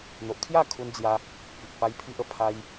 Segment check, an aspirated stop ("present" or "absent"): present